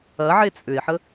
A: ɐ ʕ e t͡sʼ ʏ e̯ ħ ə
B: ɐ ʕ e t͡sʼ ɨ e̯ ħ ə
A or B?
A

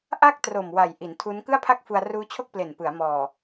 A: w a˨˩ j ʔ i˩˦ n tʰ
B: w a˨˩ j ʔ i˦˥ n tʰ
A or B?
A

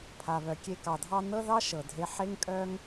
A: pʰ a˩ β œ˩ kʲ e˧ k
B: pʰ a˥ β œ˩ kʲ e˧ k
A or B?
A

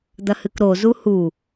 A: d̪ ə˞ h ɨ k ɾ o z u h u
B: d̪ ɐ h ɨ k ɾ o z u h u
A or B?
B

